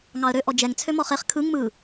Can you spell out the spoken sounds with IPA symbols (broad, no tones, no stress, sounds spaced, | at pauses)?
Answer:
ŋ ɑ ə̯ ɾ ø ʔ ɔ d͡ʒ ɛ ŋ t͡sʰ ø m ɔ χ e χ kʰ ɯ ŋ m ɯ